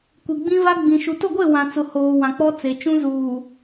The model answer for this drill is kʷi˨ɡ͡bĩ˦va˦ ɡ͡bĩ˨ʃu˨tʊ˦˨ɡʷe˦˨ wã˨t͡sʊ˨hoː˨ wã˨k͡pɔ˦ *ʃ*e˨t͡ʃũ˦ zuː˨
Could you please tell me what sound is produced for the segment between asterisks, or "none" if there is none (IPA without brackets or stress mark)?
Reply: t͡s